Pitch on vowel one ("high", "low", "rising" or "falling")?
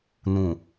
low